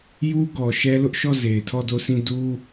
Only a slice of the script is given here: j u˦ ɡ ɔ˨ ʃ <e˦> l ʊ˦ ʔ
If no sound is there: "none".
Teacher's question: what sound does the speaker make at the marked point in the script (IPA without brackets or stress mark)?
ɛ˦